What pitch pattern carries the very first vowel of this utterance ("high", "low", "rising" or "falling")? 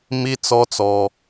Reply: high